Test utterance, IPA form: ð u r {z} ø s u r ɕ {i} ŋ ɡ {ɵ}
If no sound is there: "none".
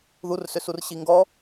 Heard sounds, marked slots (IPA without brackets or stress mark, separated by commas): s, i, ɔ